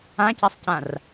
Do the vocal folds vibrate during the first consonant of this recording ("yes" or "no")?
no